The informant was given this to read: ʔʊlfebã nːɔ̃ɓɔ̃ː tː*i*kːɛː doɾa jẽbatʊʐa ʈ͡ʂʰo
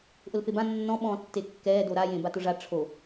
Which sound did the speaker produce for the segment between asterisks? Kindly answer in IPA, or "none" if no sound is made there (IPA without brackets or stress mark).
e